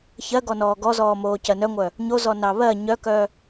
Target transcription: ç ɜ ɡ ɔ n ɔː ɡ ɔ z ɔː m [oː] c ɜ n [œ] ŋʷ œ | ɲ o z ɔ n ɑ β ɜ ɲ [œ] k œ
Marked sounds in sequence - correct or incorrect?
correct, correct, correct

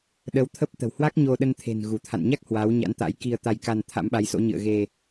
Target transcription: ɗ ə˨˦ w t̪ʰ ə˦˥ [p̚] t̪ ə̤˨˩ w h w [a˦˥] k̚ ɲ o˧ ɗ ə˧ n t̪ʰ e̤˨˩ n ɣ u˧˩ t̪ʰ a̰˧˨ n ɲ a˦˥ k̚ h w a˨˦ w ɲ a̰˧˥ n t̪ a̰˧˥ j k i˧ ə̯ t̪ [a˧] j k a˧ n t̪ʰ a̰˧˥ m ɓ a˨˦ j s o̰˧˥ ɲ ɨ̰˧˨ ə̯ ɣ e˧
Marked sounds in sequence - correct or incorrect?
correct, correct, correct

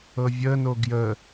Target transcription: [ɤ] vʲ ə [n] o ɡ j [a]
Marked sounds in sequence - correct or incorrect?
correct, correct, incorrect: ə

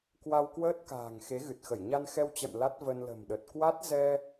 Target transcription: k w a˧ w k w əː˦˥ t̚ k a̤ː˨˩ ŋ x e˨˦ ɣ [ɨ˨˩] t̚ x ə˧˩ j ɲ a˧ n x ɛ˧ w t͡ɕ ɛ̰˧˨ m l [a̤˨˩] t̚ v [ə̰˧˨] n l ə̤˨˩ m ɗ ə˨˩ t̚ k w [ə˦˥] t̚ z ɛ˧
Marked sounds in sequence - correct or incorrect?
correct, incorrect: a˦˥, incorrect: ə˧, incorrect: a˦˥

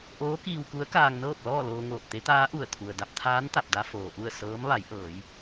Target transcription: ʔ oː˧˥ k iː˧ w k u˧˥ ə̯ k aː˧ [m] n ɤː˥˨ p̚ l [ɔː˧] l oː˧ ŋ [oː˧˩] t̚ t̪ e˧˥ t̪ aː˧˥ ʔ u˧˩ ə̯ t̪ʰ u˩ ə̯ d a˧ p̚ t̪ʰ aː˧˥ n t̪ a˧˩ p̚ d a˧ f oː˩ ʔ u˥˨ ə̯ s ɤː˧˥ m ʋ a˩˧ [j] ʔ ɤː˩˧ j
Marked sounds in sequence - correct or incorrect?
incorrect: ŋ, incorrect: ɔː˥˨, correct, correct

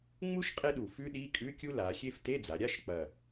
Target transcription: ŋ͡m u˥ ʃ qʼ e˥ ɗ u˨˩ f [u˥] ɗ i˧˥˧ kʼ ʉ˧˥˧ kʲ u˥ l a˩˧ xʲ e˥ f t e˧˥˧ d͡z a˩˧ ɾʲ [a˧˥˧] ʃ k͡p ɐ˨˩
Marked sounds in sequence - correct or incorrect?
incorrect: ʉ˥, correct

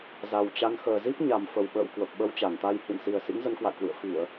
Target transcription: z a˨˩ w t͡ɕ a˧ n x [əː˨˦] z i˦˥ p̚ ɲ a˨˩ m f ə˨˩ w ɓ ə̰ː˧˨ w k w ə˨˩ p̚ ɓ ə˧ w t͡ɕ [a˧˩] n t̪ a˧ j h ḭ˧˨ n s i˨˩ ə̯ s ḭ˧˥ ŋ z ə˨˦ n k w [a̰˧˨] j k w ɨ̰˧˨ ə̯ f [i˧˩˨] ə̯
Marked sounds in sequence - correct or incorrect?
incorrect: əː˨˩, correct, correct, correct

